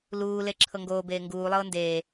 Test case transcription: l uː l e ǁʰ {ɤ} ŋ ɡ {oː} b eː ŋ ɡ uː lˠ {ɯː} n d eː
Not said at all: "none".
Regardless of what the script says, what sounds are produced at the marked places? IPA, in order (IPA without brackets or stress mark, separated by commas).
ɤ, oː, ɤː